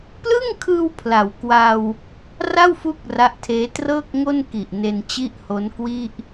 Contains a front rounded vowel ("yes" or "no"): no